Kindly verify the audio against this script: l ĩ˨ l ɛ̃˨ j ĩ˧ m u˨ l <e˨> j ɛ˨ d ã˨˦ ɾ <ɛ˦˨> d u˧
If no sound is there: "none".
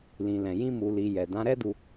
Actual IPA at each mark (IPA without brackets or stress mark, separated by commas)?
i˨, ɛ˦